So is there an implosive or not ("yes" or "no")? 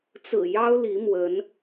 no